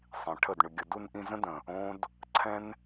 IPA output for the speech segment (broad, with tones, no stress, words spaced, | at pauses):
sˤĩ˨ʈʰə˦˨d ɳʏ˨ɡʲə˨du˧nʔĩ˧ zə̃˦də̃˨ | õ˦d | ǀʰɛ̃˦n